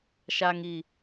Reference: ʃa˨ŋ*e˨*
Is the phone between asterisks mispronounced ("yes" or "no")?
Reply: yes